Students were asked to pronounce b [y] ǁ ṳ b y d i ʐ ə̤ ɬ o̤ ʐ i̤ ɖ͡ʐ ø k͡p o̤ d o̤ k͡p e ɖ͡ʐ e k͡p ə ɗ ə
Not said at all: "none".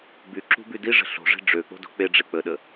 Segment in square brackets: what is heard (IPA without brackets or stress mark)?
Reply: y